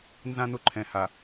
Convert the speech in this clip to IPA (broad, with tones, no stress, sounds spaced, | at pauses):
n z ã˦ n ʊ˦ ǃʰ ɛ̃˨ h a˨